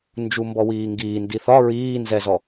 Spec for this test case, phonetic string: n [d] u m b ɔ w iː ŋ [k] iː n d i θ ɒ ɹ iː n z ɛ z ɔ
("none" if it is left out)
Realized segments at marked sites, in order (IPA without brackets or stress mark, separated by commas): d͡ʒ, ɡ